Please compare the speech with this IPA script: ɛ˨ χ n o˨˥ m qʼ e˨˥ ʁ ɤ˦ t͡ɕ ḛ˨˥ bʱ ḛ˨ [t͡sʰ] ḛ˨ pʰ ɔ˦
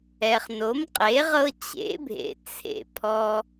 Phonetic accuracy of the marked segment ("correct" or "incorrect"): correct